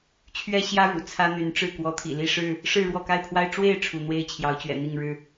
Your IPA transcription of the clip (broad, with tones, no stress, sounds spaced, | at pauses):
t͡ɕʰ ɥ ɛ˦ ɕ j ä˦ ɻ ṵ˨˩ t͡sʰ ä˦ n̪ y˨˦ n ʈ͡ʂ ɻ̩˥˨ k w ɔ˨˦ t̪ʰ ḭ˨˩ l i˥˨ ʂ ɻ̩˥˨ | ʂ ɻ̩˥˨ ɻ w ɔ˥˨ k a˥˨ ɪ̯ pʰ w a˦ ɪ̯ ʈ͡ʂ w e˥˨ ɪ̯ ʈ͡ʂʰ u˨˦ n̪ w e˦ ɪ̯ t͡ɕʰ j ɑ˨˦ ʊ̯ t͡ɕ ɥ ɛ̰˨˩ n̪ i˥˨ ŋ ɻ ɻ̩˥˨